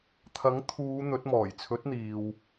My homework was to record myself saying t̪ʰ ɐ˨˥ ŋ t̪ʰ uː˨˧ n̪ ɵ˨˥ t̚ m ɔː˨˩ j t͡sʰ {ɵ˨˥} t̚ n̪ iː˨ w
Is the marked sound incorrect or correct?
correct